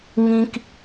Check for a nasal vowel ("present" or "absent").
present